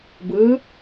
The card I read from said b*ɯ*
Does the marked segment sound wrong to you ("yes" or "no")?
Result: no